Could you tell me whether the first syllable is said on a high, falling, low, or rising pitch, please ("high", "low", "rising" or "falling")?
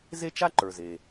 high